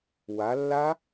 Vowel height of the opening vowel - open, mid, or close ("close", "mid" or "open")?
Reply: open